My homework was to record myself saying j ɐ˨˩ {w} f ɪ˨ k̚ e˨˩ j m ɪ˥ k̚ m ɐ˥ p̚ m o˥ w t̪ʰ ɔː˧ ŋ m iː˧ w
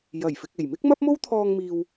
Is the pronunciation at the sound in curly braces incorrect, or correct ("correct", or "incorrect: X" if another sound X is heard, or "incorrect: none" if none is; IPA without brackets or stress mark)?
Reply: incorrect: j